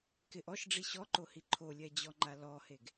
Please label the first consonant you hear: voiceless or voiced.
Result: voiceless